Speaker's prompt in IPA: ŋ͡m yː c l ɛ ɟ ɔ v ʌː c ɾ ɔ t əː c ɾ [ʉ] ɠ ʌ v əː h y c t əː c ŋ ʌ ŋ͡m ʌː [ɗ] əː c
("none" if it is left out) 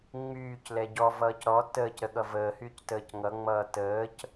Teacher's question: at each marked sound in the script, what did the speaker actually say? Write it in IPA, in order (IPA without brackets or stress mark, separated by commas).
ə, t